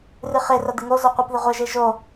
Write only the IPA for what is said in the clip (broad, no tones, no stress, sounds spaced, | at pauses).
r ɨ χ e r ɐ d̪ ɨ ŋ o z o qʷ ɪ p ð ɪ ʁʷ ɪ ʒ e ʒ o